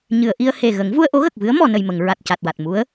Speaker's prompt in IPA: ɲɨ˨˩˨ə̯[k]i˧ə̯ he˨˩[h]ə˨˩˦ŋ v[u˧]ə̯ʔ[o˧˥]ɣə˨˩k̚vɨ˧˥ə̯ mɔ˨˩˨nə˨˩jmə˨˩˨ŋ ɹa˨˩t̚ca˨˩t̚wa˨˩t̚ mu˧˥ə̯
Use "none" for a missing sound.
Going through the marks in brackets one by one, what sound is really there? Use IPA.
ʔ, ɣ, u˧, o˧˥

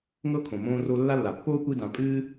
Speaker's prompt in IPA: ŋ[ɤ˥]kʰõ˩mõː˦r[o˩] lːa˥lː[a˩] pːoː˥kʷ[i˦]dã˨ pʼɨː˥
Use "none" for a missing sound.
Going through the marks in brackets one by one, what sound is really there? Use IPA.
ɤ˥, o˦, a˩, i˦

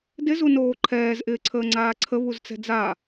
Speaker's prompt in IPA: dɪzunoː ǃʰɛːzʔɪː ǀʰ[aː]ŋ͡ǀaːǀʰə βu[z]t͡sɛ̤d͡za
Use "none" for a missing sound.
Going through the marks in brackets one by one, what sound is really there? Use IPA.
əː, z

